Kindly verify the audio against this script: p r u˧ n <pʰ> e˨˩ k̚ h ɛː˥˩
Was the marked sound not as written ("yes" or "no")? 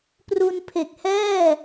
no